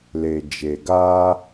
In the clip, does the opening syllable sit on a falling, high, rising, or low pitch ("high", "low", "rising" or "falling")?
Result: low